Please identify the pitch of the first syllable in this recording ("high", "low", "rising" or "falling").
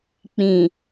low